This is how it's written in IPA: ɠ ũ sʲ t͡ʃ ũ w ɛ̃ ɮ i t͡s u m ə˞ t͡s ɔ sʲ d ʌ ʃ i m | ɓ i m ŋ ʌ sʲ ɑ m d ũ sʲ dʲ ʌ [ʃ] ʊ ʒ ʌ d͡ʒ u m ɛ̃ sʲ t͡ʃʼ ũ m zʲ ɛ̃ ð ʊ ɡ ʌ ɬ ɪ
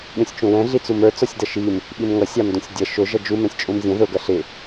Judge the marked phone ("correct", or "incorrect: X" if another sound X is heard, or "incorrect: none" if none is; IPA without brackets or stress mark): correct